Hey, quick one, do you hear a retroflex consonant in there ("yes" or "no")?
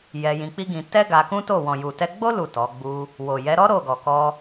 no